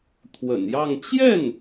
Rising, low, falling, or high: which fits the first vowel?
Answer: low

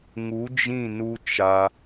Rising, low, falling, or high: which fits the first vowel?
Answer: rising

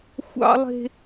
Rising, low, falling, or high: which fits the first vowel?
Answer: high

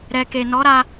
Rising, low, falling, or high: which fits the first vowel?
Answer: low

